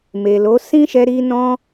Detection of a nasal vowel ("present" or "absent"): present